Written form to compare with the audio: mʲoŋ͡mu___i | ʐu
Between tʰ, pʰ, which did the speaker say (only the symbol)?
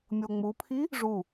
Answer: pʰ